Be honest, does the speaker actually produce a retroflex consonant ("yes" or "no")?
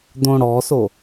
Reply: yes